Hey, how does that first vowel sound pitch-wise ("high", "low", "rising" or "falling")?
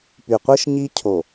low